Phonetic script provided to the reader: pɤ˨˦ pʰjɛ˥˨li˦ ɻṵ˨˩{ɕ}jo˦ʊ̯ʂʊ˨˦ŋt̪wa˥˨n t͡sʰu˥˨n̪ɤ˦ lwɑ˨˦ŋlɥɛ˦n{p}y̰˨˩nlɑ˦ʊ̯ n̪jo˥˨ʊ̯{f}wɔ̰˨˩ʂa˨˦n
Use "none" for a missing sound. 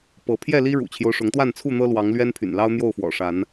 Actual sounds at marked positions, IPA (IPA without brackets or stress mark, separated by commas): t͡ɕʰ, pʰ, f